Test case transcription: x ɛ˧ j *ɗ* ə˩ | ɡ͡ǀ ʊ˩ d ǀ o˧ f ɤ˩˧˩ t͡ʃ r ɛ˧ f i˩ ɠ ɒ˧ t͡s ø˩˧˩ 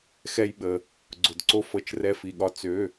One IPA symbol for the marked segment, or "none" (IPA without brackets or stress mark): ɓ